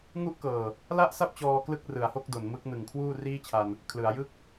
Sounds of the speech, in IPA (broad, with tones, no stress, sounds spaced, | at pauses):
ŋ u˥˩ ʔ k ɤː˨˩ | l a˥˩ ʔ s a˥˩ p̚ t͡ɕ ɔː˧ k l ɯ˥˩ k̚ r ɯ˩˦ a̯ h o˥˩ k̚ d o˩˦ n m ɯ˦˥ k̚ n ɯ˨˩ ŋ kʰ w uː˥˩ r iː˥˩ t͡ɕʰ a˧ n | kʰ l ɯ˩˦ a̯ j ɯ˥˩ k̚